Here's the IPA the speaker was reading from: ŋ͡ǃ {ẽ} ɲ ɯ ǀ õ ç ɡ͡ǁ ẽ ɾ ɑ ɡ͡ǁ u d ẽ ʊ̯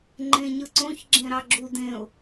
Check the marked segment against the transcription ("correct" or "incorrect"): correct